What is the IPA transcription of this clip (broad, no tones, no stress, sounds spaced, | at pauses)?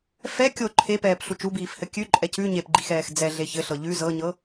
f ɛ kʲ o ǃʰ e p ɛː p ɬ u t͡ʃ u b iː f h ɘ kʲ ʉ ǃʼ ɛ c ʉ ɲ e p ɡ͡ǃ i x ɛː x d͡z ɛ ɮ e ç ɘ ɬ ɤ ʎ ʉ z ɤ ɲ ɤ